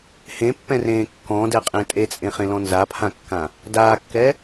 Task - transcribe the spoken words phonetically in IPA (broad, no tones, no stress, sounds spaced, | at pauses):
h ẽ pː ɛ̃ r ẽː kː ɔ̃ d ɛ qʼ ẽː tʼ e t͡sʼ ẽ χ ẽ l ɔ̃ n z a pʰ ã kː ã | d aː kː ɛ